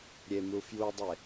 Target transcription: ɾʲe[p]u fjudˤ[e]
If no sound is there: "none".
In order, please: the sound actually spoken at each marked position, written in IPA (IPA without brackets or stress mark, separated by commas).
m, e